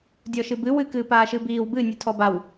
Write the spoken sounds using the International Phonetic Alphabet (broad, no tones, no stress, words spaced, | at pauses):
dʲɔʃɨbɨ wɨ kɨːpaːʃɨbiːw bɨ nʲɨtʰɔbaw